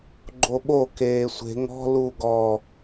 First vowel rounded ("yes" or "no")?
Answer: yes